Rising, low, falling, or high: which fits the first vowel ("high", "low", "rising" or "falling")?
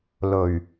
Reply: low